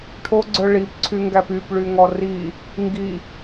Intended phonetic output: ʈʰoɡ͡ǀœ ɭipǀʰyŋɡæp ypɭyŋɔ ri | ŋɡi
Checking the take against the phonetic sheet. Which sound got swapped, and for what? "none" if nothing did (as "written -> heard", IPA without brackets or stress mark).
none